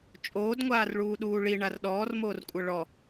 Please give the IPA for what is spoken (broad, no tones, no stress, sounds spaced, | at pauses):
t͡ʃʼ oː d ŋʷ aː r ɭ uː ɗ uː ɭ i ɳ a r ɗ ɔː r m oː r kʷʼ ɤ ɭ ɔ